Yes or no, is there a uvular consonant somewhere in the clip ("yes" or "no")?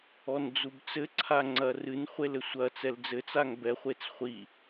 yes